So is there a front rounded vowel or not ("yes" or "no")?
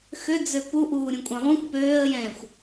yes